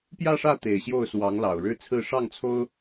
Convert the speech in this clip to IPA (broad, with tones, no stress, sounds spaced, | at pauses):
p j ä˥˧ ʂ ä˥˩ t̪ e˨˩ ɪ̯ ɕ j o˥˩ ʊ̯ s w ɑ˧˥ ŋ l ɑ˨˩ ʊ̯ ɻ ɻ̩˥˧ t͡sʰ ɹ̩˥˧ ʂ ɑ˥˩ ŋ t͡sʰ o˥ ʊ̯